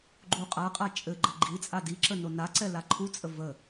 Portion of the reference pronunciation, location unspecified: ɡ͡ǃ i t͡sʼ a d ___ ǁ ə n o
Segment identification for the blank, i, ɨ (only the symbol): i